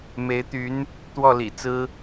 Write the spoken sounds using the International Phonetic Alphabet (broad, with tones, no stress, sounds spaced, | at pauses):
m e˧˥ ɪ̯ t̪ y˧˥ n | t̪ w ɔ˥˩ l ḭ˨˩ t͡s ɹ̩˥